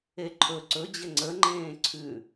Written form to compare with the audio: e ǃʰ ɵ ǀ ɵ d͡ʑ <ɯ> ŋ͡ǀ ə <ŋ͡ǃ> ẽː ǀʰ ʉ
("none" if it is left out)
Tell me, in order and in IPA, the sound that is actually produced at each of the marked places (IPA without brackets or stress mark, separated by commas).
ə, ŋ͡ǃ